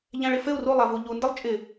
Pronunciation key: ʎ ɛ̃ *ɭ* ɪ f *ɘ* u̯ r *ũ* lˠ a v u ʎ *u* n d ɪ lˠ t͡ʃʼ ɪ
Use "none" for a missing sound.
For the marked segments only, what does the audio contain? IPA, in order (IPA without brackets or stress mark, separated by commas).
ɭ, ɘ, u, u